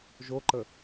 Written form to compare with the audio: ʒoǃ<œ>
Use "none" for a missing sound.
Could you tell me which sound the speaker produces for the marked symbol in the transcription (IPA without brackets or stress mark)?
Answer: ə